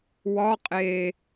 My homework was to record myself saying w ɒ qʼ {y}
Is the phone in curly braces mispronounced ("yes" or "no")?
yes